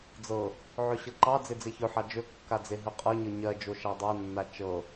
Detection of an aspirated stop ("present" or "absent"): absent